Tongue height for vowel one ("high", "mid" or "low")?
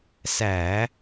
low